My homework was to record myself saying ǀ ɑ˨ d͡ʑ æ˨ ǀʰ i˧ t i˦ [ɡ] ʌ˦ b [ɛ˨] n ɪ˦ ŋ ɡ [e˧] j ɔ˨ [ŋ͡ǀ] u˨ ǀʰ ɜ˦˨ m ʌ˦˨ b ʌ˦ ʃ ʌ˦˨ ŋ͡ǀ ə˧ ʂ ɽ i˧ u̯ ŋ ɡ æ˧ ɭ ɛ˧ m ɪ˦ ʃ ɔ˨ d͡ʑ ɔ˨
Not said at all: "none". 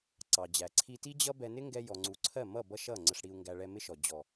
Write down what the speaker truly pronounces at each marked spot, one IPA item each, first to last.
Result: d͡ʑ, ɛ˧, ɛ˧, ŋ͡ǀ

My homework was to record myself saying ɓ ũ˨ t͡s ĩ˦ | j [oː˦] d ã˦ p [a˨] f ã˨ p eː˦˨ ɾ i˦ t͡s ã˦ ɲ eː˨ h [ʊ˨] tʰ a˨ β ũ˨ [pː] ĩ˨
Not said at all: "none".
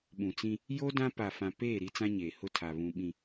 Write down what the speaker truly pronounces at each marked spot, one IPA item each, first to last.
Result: o˦, a˨, ʊ˦˨, ɓ

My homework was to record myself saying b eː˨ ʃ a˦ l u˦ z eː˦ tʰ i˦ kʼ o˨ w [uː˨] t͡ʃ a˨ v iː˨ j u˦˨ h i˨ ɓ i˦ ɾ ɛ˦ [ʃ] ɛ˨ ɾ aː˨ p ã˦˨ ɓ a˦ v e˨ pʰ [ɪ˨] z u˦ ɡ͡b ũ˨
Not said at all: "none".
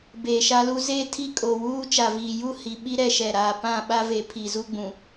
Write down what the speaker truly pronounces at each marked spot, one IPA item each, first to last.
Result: uː˦, ʃ, i˨

